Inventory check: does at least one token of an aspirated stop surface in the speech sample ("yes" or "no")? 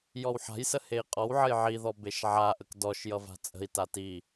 no